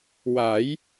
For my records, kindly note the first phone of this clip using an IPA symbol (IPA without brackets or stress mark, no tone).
w